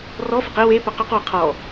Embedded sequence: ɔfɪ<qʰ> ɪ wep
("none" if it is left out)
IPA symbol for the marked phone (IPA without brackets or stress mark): q